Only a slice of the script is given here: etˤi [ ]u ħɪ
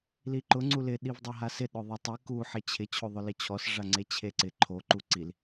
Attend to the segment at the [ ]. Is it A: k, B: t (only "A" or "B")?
A